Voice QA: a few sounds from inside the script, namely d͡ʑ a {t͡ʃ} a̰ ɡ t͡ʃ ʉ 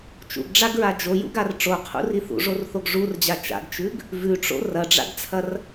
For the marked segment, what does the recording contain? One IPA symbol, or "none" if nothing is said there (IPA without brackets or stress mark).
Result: t͡ʃ